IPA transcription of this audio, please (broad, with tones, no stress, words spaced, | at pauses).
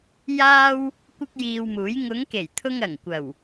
jaː˥w | kʷɪ˥k̚jiː˧wmuː˨˥j ŋʊ˨˧ŋke˨˩jt̪ʰʊ˧ŋ ɐ˨˩ŋkʷɐ˨˩w